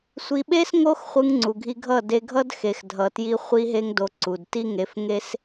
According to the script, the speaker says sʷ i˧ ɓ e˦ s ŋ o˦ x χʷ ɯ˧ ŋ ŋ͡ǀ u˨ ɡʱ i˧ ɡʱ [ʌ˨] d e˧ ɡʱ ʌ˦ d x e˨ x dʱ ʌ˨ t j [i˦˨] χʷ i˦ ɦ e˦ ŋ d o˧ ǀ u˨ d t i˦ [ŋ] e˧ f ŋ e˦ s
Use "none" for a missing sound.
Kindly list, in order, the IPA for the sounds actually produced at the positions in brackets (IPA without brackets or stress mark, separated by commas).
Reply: ʌ˦˨, i˧, ŋ